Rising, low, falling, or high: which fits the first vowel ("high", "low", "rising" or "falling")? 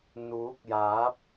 rising